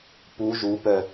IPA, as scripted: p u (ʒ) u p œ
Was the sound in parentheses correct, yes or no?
yes